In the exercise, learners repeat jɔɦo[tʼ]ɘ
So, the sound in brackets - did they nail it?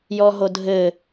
no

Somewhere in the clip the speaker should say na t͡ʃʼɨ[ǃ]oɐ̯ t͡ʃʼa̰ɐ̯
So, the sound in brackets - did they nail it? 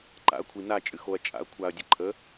no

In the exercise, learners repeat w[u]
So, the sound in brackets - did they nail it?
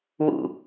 no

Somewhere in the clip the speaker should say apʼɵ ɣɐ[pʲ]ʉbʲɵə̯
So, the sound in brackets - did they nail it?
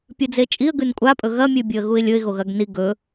no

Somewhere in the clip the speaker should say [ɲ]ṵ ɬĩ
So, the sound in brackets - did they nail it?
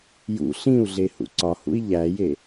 no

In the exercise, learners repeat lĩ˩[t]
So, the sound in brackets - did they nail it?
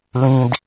no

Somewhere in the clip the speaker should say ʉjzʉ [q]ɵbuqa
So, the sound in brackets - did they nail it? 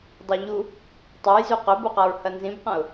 yes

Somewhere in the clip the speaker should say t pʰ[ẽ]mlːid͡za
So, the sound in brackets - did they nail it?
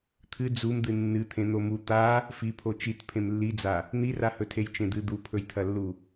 yes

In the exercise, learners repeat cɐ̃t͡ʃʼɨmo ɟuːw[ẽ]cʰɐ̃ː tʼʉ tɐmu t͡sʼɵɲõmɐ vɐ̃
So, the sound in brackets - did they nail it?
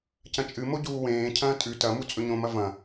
no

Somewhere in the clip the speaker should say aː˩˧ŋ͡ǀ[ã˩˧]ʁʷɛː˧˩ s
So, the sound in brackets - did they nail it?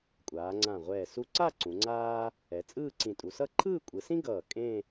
no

